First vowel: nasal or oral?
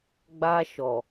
oral